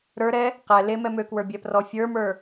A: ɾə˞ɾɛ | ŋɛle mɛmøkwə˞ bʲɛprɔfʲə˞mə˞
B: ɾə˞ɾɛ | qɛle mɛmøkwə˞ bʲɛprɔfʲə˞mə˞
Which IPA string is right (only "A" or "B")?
B